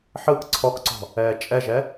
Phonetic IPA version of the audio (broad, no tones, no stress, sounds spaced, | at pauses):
ħ ɯ k ǀʰ ɔ k ǀ ɔ̤ | ɛː t͡ʃʼ ɛ ʒ ɛ